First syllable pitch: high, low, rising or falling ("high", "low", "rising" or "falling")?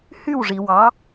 falling